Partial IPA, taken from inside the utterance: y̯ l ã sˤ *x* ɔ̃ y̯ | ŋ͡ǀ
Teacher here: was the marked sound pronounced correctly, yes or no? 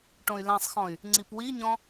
yes